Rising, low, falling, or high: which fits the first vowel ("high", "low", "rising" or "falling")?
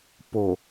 low